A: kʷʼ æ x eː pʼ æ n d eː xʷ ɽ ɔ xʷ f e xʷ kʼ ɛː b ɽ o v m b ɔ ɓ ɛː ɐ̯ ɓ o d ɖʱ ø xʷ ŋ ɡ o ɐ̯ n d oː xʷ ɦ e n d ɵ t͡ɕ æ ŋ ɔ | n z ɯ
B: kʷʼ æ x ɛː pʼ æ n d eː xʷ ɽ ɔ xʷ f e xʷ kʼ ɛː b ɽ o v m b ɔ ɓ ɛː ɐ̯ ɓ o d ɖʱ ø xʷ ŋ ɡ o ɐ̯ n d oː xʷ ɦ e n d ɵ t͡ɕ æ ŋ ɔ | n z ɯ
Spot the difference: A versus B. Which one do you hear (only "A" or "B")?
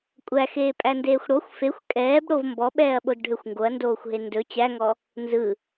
A